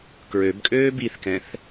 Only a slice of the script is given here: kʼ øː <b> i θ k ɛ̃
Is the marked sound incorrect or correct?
correct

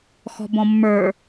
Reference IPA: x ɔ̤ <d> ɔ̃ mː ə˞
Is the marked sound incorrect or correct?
incorrect: b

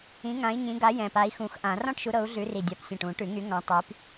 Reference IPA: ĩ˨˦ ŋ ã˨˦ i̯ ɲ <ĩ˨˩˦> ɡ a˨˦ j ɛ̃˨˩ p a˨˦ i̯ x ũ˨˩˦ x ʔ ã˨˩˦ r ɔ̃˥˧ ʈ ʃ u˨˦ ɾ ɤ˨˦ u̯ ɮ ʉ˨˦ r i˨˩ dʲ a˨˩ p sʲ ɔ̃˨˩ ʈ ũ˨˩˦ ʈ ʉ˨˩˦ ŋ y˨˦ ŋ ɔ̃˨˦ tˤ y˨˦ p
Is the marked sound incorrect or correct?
incorrect: ĩ˨˦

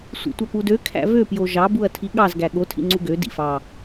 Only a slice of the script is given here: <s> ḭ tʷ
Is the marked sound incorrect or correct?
incorrect: sʷ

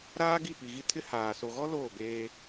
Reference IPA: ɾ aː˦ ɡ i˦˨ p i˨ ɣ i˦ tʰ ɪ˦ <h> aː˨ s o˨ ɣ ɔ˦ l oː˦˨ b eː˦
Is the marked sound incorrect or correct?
correct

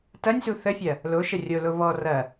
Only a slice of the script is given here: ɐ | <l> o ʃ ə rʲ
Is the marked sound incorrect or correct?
correct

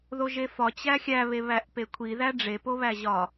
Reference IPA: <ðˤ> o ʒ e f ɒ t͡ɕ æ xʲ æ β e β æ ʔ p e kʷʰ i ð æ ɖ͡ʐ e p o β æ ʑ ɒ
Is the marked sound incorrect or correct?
incorrect: ð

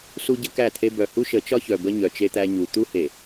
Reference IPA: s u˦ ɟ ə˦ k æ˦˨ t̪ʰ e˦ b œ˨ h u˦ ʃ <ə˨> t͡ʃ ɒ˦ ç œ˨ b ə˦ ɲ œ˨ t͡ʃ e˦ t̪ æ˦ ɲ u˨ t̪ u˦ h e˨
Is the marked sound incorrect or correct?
incorrect: ə˨˦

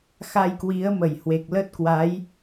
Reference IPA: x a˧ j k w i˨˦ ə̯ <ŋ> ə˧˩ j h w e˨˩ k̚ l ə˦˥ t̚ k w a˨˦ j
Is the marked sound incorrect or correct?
incorrect: m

